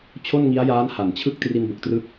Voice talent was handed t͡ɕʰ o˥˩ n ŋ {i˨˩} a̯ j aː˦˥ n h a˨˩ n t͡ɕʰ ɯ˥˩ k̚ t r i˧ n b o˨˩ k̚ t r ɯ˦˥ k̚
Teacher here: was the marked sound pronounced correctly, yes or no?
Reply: no